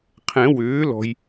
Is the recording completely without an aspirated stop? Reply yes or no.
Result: no